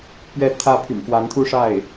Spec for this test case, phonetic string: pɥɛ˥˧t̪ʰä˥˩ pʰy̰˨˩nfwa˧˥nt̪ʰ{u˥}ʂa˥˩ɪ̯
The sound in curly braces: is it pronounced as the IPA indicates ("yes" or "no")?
yes